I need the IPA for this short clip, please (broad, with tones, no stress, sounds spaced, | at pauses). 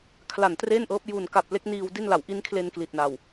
kʰ l a˨˩ n t r e˥˩ n ʔ ɤː˦˥ p̚ j u˨˩ n k a˨˩ p̚ l e˦˥ k̚ n iː˧ w d i˥˩ n l a˨˩ w ʔ i˦˥ n kʰ l e˧ n k l i˨˩ t̚ n a˨˩ w